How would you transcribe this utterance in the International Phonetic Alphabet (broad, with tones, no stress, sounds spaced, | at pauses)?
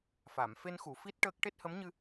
f a˨˩˨ m f e˧ n x u˨˩˨ f i˦˥ t̚ ʈ əː˦˥ k̚ ʈ e˦˥ t̚ h ə˧˥ m ɲ ɨ˧